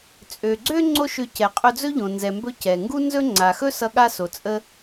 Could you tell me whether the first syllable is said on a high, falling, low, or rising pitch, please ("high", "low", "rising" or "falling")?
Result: low